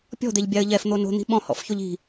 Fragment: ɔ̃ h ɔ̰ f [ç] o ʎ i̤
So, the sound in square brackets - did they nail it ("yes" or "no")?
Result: yes